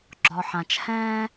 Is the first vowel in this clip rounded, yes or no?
yes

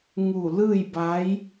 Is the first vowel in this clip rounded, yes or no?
yes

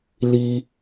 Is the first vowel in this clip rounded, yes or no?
no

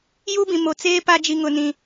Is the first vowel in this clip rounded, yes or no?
yes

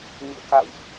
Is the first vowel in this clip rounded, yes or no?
yes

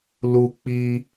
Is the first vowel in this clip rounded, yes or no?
yes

